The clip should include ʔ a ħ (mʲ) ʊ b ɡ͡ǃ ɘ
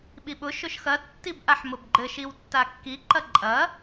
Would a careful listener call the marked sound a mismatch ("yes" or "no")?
yes